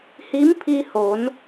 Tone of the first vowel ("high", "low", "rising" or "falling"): rising